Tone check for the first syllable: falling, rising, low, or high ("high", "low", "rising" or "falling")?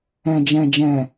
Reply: low